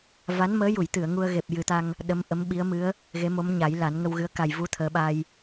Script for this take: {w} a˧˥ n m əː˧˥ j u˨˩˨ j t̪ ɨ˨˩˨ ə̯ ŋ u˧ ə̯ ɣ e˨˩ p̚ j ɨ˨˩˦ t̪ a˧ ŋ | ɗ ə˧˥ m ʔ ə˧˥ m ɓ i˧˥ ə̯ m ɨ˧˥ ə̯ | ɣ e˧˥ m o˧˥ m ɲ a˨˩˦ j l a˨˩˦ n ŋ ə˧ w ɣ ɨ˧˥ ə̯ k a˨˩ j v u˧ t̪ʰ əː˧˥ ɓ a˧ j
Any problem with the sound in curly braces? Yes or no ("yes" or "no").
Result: yes